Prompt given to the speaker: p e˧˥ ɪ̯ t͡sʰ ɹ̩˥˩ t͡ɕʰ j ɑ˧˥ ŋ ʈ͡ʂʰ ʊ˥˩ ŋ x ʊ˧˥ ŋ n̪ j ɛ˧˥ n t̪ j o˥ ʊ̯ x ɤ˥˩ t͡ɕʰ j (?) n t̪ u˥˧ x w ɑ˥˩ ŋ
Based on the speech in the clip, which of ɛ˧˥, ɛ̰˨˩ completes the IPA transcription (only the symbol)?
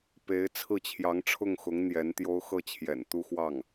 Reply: ɛ̰˨˩